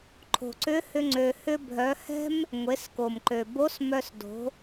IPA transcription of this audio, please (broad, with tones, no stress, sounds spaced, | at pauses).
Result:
ǃʰ o̤˩ ǀ ʏ˧˥ h ʏ˧ ŋ͡ǀ ø˧ h ʏ˥ bʱ œ˧˥ h ɛ̤˥ m | ŋʷ e˩˧ s k o˩ m ǃ ø˩ b o˧˥ s m œ˧ s d o̤˩˧